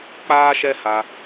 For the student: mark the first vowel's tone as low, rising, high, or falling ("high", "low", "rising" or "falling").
high